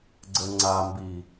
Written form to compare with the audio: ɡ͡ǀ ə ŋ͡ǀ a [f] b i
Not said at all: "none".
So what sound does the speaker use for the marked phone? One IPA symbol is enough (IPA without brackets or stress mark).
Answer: m